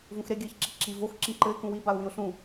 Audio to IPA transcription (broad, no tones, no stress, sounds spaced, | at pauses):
v ũ x ɾ e ɡʲ ɘː ç ǁ i ǁ i v o x ǁ ĩ ǃ ɘ ɪ̯ k ũ w i b a ʊ̯ w ĩ ʊ̯ ɬ ũ